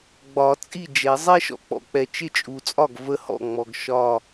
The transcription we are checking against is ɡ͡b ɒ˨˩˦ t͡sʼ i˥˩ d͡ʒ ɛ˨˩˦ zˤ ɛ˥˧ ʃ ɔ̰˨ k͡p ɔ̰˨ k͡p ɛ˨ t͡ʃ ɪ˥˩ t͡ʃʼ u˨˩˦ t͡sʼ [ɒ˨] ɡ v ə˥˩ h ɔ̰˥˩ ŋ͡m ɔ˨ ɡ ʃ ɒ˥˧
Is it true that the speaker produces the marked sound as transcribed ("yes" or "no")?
no